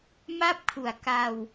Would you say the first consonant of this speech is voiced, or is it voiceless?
voiced